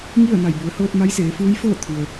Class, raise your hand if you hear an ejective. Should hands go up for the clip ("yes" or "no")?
no